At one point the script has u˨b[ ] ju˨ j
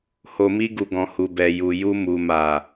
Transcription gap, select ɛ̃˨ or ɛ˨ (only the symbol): ɛ˨